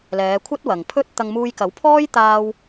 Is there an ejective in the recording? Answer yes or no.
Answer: no